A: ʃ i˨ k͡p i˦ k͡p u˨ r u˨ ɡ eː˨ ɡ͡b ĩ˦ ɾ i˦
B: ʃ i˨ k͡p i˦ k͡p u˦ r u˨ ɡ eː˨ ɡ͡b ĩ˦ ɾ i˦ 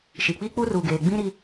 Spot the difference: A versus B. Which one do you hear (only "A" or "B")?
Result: B